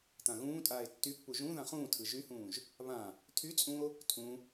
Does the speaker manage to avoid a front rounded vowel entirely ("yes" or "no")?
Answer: no